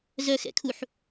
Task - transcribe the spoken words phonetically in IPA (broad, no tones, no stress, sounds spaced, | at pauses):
z œ x ɛ̰ kʰ u ħ